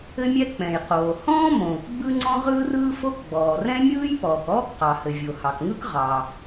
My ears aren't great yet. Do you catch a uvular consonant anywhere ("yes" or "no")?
yes